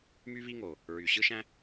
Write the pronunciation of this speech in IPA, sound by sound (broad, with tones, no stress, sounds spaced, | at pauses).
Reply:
m y˥ β i˥ ŋ o˩ | ɹ y˩ ɕ ɯ˥ ʃ æ̃˥